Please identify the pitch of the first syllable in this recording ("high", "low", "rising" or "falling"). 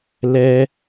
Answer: high